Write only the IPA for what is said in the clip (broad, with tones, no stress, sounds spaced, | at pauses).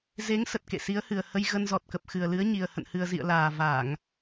z e˨˦ ŋ s ə˨˩ t̚ k ḛ˧˨ s i˨˦ ə̯ h ɨ˨˩ ə̯ h ə˧ j ɣ ə˧ n z ɔ˨˩ t̚ k ə˨˩ p̚ x ɨ˨˩ ə̯ l ɨ˨˦ ə̯ ɲ i˨˩ ə̯ h ə̰˧˨ n h ɨ˨˩ ə̯ z ḭ˧˨ ə̯ l aː˨˩ v a˧˩˨ ŋ